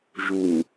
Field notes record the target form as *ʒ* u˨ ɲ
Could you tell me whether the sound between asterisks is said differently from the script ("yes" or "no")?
no